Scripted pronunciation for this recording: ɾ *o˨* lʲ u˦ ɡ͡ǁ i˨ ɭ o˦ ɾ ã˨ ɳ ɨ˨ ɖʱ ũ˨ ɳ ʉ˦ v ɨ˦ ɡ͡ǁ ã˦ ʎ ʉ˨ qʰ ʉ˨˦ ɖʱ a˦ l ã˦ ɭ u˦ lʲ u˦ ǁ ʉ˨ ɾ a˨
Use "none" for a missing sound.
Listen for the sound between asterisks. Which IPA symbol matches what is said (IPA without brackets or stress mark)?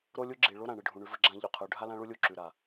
o˦